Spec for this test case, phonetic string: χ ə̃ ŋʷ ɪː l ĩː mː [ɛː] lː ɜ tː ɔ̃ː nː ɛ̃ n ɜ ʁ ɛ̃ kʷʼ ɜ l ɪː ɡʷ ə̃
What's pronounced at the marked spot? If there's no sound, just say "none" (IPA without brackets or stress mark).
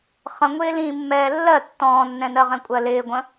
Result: ɛː